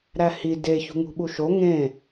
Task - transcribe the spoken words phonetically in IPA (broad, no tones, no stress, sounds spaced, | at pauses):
ɾ æ h i d e ç ṳ ŋ ṳ ɓ u ʃ o ŋ ẽ